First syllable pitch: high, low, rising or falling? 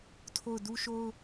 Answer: falling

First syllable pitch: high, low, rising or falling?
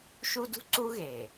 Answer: high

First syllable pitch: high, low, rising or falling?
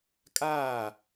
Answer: falling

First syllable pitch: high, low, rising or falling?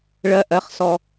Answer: low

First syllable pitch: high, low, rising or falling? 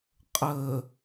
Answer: low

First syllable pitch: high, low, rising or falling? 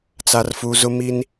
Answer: low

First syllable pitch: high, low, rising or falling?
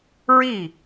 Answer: falling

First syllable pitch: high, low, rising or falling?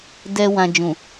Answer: low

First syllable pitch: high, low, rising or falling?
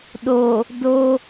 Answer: low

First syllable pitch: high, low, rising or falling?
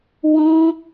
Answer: high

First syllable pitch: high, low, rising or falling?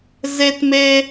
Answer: high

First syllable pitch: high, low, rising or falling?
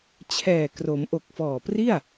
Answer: low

